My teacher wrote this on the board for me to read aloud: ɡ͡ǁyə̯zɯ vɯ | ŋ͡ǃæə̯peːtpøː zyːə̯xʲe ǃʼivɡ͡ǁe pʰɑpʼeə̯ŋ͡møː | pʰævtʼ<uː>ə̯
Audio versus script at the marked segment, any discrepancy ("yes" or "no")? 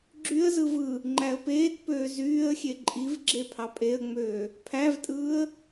yes